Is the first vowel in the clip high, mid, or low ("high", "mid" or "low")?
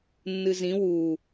high